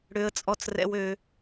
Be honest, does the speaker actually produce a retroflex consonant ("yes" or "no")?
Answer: yes